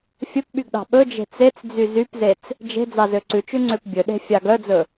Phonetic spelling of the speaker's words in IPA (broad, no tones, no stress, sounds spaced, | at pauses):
fʲ ɵ p ɓ y ɡ ɗ ɑ̤ ɓ ɵ d͡ʒ e̤ t͡s e t͡s d͡z y z y p z e t͡s | d͡ʒ e̤ d͡z ɑ z ø ǀ ʉ t͡ʃ ʉ ŋ͡ǀ ø p bʲ ɵ ɗ e̤ fʲ ɑ ɡ œ d͡z ɵ